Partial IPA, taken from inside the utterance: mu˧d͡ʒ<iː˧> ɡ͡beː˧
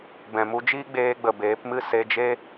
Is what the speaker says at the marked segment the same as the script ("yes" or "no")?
no